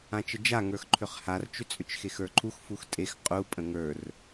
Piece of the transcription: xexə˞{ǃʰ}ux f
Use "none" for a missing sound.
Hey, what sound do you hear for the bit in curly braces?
ǃʰ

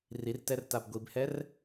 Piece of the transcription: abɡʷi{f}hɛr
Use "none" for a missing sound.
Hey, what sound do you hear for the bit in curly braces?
b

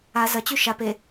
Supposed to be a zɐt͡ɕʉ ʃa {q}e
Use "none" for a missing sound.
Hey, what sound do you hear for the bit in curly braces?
p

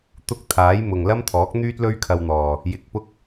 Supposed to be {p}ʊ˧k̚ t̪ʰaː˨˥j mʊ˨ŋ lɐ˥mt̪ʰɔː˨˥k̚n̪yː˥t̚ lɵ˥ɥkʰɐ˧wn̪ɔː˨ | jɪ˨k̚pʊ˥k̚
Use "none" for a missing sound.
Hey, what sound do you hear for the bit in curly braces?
t̪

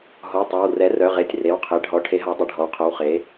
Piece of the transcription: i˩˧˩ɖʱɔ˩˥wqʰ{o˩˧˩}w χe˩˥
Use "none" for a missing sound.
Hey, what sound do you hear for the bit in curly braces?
o˩˧˩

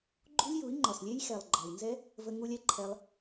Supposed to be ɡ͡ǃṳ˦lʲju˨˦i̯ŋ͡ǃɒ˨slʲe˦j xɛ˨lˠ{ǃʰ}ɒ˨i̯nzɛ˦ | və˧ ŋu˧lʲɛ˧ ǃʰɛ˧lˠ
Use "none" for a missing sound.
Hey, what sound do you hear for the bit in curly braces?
ɡ͡ǃ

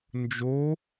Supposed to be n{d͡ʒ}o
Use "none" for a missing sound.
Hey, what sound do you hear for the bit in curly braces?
d͡ʒ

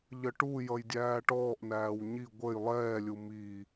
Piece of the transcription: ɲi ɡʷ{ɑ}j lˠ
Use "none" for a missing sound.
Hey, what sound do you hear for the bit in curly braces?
ə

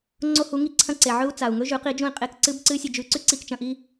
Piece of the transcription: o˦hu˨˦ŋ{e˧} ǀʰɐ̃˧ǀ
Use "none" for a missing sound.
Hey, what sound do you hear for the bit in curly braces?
i˧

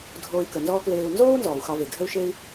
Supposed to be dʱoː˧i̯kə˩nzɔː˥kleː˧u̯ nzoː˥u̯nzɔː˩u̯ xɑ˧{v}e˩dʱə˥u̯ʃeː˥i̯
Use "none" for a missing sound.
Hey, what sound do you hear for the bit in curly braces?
v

